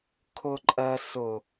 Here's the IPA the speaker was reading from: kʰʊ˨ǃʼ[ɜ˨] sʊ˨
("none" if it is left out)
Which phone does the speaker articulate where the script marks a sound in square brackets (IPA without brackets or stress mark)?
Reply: ɜ˨